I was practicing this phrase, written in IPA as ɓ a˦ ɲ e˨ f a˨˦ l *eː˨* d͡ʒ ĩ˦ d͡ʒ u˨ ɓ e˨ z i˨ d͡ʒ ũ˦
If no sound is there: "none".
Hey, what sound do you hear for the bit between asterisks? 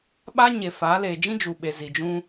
eː˨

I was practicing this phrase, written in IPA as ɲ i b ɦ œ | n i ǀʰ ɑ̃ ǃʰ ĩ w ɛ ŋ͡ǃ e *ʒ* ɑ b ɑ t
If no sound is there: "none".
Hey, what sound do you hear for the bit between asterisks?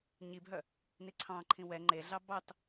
ɮ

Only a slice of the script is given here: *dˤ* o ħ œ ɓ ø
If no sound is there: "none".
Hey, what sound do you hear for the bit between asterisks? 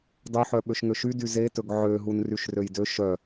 dˤ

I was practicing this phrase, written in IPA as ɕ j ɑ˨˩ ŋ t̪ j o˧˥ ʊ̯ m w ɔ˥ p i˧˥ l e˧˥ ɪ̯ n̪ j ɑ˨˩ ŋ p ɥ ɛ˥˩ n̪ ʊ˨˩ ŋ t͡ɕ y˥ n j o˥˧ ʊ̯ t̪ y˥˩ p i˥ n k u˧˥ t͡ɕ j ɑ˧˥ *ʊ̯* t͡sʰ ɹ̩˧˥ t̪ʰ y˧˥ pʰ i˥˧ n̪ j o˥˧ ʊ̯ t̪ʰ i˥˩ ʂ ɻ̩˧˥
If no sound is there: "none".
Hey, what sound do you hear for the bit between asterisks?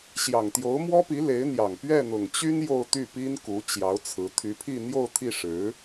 ʊ̯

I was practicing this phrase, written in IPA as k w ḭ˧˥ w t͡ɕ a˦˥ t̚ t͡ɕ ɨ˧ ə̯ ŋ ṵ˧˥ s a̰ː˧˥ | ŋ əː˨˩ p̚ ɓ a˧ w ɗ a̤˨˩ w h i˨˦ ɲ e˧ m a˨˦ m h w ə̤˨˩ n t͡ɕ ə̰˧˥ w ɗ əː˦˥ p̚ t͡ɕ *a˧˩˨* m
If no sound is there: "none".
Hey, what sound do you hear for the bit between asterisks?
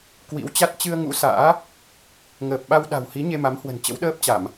a˧˩˨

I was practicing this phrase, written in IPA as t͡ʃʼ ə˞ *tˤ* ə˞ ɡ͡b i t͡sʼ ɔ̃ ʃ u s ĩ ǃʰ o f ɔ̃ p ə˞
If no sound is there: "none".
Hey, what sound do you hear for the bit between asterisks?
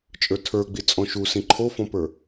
tʰ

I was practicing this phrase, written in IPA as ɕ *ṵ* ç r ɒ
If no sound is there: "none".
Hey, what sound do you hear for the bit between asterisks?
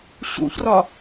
ṵ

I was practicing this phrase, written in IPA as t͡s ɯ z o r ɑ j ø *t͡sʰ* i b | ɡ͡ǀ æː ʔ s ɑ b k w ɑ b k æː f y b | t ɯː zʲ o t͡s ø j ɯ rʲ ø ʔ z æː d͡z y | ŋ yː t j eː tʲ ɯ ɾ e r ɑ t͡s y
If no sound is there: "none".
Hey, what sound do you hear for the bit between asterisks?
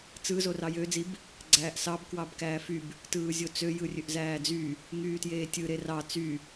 d͡z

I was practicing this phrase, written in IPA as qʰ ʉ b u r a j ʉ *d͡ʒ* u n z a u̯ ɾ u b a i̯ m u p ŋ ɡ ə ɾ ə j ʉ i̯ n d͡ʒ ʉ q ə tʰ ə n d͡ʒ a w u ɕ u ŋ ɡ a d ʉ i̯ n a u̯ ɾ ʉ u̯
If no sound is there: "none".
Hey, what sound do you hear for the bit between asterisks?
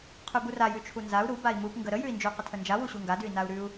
t͡ʃʰ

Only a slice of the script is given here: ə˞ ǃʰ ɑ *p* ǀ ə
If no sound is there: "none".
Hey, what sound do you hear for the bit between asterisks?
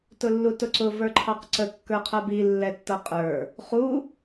q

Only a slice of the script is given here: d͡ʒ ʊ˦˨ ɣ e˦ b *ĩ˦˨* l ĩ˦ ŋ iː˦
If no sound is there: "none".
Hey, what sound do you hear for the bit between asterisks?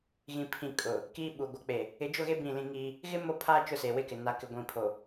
ĩ˦˨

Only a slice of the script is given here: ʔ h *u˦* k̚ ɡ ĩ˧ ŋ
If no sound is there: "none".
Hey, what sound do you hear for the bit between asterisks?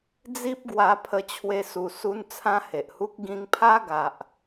u˦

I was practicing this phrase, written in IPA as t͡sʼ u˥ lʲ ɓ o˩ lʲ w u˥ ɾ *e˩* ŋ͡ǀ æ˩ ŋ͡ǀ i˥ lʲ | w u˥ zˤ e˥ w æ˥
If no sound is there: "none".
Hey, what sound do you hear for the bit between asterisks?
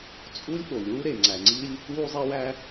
e˩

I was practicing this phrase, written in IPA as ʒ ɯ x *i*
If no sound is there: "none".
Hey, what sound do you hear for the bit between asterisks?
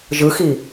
i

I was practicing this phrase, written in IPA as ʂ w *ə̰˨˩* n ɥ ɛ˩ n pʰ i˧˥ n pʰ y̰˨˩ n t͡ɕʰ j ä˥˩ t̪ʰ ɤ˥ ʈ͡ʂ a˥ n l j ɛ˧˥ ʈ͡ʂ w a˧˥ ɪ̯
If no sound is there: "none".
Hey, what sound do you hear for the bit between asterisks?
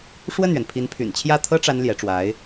ə˥˩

